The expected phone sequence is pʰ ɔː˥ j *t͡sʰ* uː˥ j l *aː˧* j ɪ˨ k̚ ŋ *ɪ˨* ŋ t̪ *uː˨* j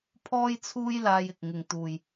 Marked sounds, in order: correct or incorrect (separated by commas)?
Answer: correct, correct, correct, correct